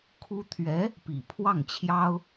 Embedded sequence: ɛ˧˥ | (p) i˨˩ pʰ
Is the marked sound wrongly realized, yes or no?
no